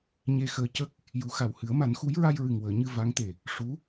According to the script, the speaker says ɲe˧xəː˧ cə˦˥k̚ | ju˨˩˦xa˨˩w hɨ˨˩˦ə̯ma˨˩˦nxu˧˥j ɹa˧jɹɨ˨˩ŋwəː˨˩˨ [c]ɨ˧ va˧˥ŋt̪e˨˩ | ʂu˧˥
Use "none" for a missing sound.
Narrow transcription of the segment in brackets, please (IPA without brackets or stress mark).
ɲ